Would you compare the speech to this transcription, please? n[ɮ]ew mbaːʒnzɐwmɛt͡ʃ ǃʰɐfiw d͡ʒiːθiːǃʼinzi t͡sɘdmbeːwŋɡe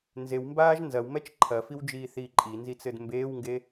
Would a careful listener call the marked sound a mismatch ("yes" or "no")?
yes